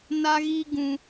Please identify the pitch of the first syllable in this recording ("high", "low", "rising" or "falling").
high